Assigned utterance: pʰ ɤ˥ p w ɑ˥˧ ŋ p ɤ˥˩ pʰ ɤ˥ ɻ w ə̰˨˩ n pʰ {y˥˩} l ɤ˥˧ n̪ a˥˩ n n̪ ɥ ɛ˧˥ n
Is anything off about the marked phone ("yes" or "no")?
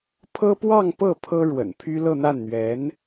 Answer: yes